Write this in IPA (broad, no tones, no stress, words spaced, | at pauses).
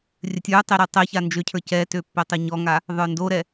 rʲɘtʲə˞tˤe ɾə˞tˤɛça nd͡ʒøcʰə˞ cɛtø pːœtˤɘɲɔŋa | ðˤə˞ndoɾɛ